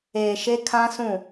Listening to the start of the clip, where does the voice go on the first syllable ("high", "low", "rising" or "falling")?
low